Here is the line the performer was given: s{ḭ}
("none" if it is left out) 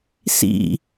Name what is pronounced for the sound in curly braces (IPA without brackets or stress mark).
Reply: ḭ